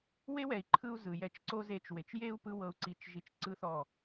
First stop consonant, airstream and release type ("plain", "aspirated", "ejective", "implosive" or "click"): click